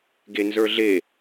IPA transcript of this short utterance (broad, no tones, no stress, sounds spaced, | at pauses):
ɡ e n z ə˞ ɮ e